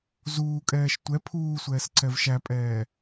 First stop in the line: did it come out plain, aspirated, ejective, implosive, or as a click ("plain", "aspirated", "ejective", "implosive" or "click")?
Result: ejective